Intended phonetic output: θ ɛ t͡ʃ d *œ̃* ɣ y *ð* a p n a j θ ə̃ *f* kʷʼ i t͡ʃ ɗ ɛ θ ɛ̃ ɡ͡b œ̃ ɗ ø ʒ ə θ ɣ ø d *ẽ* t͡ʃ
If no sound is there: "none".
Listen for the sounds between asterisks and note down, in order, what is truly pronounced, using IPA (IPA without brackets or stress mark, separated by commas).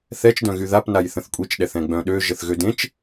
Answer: œ̃, ð, θ, ẽ